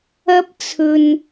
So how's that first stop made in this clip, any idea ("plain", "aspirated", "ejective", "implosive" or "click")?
plain